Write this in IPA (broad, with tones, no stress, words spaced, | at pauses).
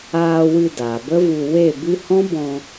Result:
aː˧wɨ˧ da˨bə˦vu˧ we˦˨bɨ˦ hɔ̃˦bɔ̃˧